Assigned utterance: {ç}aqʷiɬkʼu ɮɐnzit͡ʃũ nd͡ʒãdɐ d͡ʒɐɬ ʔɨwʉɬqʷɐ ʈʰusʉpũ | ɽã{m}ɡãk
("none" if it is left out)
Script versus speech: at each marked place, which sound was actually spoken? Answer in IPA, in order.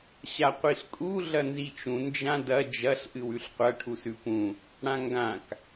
ɕ, ŋ

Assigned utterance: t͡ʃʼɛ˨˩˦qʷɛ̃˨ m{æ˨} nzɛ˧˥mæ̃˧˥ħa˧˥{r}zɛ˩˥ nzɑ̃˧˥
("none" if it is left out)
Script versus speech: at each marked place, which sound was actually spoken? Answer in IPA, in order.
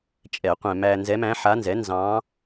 æ˨, n

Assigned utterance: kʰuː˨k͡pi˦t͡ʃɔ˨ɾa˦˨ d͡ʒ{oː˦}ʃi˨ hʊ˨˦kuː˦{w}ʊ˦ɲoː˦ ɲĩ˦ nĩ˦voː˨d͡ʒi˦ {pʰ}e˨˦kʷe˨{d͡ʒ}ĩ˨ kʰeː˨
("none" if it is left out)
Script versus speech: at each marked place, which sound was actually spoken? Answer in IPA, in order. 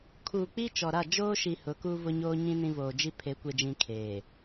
oː˦, v, pʰ, d͡ʒ

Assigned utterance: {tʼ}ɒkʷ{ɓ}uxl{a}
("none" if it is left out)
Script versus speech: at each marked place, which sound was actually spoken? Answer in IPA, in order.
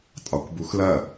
tʼ, b, ɐ

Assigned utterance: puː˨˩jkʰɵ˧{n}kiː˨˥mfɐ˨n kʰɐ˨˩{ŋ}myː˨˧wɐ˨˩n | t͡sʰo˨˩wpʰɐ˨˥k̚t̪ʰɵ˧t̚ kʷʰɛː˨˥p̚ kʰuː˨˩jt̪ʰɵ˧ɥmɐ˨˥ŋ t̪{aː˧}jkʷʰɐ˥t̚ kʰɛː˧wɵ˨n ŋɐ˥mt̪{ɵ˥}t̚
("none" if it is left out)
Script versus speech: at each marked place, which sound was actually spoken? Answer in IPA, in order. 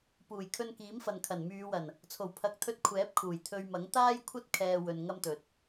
n, n, aː˥, ɵ˨

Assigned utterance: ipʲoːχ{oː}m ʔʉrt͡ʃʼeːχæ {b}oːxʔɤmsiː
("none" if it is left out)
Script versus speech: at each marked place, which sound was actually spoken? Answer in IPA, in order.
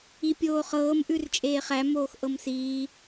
ɤː, m

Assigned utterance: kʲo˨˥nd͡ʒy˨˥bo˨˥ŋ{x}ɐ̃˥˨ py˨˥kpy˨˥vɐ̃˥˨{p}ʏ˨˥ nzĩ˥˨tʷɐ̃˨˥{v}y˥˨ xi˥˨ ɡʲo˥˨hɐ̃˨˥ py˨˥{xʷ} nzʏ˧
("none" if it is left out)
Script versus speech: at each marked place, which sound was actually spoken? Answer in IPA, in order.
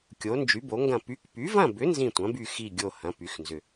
ɡ, b, b, x

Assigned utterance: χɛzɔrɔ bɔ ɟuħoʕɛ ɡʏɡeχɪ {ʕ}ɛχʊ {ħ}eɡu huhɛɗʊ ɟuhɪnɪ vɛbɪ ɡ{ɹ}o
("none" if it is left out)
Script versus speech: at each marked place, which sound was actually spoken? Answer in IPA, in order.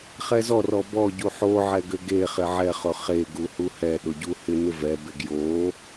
ʕ, χ, j

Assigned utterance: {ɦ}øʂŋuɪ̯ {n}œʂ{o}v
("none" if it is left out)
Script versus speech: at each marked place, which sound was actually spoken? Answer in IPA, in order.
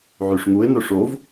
ʕ, n, o

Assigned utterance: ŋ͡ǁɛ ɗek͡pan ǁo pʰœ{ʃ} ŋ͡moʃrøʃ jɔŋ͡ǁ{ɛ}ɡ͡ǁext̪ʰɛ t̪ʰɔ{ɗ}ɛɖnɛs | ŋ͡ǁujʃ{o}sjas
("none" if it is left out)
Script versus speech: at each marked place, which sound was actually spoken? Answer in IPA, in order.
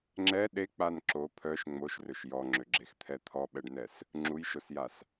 ʃ, ø, ɓ, o

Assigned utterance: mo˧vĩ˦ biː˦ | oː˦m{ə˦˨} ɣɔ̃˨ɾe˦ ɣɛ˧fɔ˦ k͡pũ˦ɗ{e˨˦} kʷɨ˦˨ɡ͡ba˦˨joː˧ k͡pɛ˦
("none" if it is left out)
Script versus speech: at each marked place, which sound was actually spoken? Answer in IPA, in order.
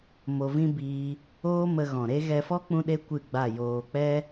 ə˧, e˦

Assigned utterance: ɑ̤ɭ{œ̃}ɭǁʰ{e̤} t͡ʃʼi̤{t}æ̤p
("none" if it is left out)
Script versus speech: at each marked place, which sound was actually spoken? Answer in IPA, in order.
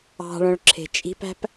œ̃, e̤, p

